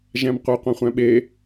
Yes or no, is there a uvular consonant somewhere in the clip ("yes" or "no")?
yes